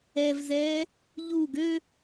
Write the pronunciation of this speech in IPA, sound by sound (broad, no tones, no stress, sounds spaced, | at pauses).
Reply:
ɛ v z ɛː | ʎ u ɡ ø